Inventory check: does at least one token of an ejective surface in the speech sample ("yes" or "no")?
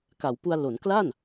no